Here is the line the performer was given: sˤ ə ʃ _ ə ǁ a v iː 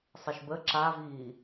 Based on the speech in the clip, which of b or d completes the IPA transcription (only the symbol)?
b